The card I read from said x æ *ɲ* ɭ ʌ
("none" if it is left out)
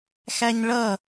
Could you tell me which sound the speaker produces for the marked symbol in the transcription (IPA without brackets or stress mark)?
ɲ